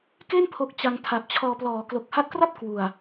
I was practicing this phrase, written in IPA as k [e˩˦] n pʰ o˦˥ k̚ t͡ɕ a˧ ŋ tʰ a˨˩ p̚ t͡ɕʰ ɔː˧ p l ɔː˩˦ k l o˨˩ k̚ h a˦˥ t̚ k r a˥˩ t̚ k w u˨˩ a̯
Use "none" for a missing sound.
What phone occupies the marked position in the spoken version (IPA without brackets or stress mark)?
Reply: e˥˩